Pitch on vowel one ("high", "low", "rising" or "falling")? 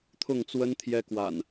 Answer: falling